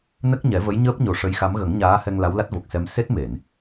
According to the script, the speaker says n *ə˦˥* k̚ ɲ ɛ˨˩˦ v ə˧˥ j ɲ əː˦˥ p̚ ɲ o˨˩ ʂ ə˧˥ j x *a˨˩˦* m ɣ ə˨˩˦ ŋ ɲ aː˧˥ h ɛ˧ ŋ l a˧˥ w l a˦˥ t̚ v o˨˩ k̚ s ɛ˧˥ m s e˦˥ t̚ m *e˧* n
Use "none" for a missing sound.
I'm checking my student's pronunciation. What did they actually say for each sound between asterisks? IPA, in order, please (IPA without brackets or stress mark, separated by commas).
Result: ə˦˥, a˧˥, e˨˩˨